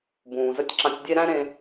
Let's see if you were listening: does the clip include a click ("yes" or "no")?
yes